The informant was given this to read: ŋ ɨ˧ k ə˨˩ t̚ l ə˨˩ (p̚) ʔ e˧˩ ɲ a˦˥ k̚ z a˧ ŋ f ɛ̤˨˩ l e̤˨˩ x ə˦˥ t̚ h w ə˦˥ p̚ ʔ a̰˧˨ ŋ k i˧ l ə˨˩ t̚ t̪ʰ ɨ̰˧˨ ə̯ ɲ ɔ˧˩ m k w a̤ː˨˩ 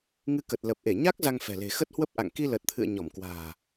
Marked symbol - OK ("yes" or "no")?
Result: yes